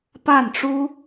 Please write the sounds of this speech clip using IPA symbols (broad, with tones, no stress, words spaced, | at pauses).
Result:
pa˥˩nʈ͡ʂu˥